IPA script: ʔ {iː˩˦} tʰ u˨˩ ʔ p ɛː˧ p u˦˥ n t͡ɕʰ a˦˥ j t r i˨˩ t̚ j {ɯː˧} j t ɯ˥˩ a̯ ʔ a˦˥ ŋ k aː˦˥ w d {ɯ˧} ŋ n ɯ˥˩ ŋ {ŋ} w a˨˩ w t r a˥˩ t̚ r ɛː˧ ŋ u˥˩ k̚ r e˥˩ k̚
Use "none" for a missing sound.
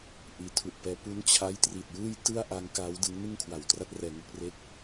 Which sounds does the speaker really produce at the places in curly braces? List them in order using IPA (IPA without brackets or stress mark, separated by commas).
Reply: iː˩˦, ɯː˥˩, ɯ˦˥, kʰ